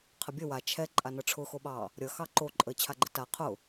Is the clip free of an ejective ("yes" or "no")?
no